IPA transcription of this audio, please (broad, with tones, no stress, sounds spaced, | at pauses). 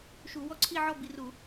ʃ u˧˩˧ w ɔ˥˨ ǀʰ i˥˨ ʕ ɔ˥˨ b i˧˩˧ r u˧˩˧